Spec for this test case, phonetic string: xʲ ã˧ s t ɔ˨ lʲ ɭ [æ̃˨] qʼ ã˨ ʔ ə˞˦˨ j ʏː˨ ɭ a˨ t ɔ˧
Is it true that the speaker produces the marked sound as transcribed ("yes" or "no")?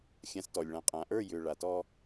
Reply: no